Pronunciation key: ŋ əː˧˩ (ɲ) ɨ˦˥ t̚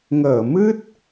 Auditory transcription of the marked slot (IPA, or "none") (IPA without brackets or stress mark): m